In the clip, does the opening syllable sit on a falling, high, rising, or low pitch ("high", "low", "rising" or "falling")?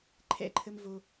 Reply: high